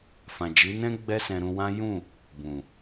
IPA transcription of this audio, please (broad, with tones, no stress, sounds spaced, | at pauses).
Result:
f ã˨ d͡ʒ i˨˦ n ɛ̃˦ ɡ͡b ɛ˦ s ɛ̃˧ ɾ ũ˧ w ã˦ j ũ˦˨ | b ũ˨